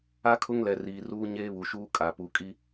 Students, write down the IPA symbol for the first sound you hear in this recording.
a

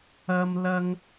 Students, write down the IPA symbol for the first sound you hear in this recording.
ɐ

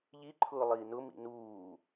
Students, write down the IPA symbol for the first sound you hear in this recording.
ʎ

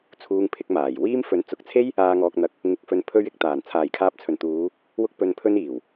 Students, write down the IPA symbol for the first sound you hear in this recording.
t͡sʰ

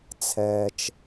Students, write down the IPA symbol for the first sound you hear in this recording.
t͡sʰ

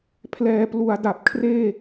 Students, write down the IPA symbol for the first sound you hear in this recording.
pʰ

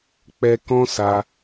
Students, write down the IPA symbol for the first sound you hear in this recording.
k͡p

